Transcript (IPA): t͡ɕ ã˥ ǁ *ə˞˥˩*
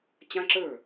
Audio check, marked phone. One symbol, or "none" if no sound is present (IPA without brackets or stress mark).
ə˞˥˩